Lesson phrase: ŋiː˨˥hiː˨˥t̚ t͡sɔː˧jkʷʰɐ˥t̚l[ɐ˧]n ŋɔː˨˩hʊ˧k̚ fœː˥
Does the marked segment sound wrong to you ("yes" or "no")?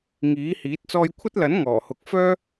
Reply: yes